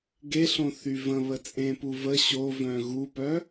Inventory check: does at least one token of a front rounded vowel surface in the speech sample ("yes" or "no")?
yes